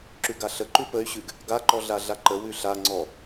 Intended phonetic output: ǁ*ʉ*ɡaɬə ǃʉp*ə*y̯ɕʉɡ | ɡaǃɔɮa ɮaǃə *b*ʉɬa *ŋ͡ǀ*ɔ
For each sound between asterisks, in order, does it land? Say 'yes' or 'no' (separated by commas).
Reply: yes, yes, no, yes